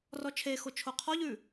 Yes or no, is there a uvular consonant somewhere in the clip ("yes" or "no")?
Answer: yes